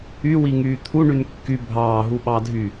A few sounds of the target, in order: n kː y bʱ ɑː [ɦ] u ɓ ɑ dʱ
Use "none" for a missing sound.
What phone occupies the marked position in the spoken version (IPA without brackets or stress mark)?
ɦ